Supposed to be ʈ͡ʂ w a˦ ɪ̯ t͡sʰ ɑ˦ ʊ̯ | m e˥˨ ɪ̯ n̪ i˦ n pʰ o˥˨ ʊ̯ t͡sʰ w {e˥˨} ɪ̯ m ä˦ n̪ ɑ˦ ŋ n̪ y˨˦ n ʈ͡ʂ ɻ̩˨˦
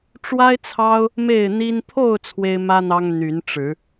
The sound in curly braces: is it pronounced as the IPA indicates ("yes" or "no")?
no